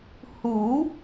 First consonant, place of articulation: glottal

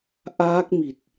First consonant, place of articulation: glottal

